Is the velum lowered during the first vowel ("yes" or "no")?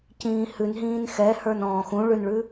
yes